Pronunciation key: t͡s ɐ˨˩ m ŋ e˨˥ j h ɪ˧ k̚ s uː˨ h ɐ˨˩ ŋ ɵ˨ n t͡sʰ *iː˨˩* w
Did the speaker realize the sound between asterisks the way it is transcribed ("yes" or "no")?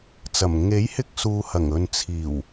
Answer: yes